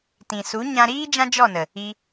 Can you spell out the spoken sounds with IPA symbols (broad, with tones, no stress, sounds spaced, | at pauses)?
t ĩ˨ s u˨˦ ɲ ã˧ ɾ iː˦ d͡ʒ ã˦ d͡ʒ ɔ˦˨ n ə˨ | i˧